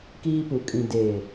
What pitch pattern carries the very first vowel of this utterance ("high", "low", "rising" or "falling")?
high